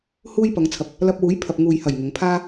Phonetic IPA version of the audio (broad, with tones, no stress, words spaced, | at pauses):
huː˧j pɐ˨˧ŋt͡sʰɐ˨˥p̚ | lɐ˧p̚wuː˨˥jpʰɐ˨p̚ ŋuː˨jhɐ˨˩j ŋʊ˨˧ŋpʰaː˥